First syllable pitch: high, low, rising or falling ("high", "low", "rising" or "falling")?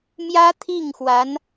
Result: high